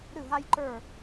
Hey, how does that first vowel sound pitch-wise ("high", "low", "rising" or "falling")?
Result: falling